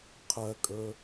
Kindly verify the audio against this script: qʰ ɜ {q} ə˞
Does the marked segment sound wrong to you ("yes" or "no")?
yes